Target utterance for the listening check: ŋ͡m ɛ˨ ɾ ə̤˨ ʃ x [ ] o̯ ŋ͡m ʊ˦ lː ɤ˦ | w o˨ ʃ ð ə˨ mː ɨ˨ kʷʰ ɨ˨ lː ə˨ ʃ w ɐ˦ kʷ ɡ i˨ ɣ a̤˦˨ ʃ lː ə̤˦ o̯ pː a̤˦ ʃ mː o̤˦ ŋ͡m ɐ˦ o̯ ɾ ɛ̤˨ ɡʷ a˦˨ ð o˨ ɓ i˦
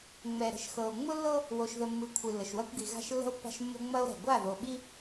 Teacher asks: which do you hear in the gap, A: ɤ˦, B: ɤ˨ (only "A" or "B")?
B